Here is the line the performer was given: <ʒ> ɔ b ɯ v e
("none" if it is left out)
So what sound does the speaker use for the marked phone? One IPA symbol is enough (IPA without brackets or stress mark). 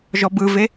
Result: ʒ